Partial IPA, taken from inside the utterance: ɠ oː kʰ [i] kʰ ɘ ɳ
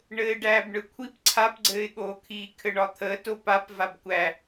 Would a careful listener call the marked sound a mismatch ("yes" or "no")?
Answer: yes